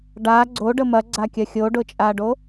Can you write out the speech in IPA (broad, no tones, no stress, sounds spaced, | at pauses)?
ɖ a ɡ͡ǀ o ɖ ə m ɐ ɡ͡ǀ a kʲ ɐ xʲ o ɖ ʊ t͡ʃʼ a ɖ o